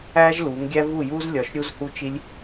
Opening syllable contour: high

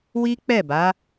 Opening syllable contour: high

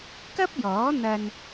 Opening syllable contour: high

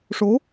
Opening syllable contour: rising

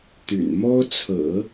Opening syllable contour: low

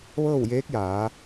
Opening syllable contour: falling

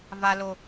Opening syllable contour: high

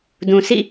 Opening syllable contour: low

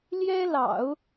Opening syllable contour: high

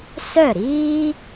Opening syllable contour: falling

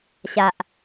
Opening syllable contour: low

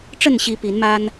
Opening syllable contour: falling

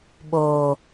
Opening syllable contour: low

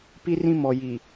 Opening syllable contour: high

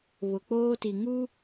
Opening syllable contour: low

